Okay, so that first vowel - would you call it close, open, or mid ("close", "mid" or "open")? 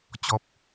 mid